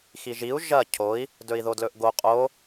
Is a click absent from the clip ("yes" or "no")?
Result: yes